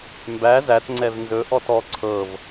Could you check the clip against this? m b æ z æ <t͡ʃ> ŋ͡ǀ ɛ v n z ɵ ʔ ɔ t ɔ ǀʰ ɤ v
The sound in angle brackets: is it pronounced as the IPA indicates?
no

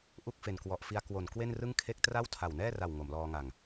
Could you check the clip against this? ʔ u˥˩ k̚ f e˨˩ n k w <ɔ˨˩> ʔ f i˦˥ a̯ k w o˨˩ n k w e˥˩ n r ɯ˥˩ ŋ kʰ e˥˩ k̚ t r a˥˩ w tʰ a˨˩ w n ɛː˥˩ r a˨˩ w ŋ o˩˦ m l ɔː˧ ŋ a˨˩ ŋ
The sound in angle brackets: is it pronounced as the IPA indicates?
yes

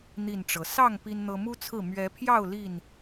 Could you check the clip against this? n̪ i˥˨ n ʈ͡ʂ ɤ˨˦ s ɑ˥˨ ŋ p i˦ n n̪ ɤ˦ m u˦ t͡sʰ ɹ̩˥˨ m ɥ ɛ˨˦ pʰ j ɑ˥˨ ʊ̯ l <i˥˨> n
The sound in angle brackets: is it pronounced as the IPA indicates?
yes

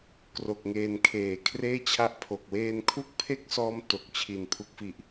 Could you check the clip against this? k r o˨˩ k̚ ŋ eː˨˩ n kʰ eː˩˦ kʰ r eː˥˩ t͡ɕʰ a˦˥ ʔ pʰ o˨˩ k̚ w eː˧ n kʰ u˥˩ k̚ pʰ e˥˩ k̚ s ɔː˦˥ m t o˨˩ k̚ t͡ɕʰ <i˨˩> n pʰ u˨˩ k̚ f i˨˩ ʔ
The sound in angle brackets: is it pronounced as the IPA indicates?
yes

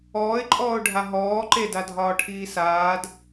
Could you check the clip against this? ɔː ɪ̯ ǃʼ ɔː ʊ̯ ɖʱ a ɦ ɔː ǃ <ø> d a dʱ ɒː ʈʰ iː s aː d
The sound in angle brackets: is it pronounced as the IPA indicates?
no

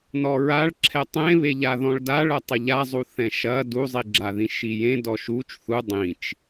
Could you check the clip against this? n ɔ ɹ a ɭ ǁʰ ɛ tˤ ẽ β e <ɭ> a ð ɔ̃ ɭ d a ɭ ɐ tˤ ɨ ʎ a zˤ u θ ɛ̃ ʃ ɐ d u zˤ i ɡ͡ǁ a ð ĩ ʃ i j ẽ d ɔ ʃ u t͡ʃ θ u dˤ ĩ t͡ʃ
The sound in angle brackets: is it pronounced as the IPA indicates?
no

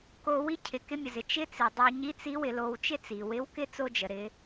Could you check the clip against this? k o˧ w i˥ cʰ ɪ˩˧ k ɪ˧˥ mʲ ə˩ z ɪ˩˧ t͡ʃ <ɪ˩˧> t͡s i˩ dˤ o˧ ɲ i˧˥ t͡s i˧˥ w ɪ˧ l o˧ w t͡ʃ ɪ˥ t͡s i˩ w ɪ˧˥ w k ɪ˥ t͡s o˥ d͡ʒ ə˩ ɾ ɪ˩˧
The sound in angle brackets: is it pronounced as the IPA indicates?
no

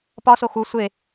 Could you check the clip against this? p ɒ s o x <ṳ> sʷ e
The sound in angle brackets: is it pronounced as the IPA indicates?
no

